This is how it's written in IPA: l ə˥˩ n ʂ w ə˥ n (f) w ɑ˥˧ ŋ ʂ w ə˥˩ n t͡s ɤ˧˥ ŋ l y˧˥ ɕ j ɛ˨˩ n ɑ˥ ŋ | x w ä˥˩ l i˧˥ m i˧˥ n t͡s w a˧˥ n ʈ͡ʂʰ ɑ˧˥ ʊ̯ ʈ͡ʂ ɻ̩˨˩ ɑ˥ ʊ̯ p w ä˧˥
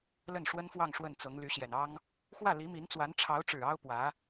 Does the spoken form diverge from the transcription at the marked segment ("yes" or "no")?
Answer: no